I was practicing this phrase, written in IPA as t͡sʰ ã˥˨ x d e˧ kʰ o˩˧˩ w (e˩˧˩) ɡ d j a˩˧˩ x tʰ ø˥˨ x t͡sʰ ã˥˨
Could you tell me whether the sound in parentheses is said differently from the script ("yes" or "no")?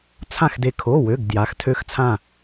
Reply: yes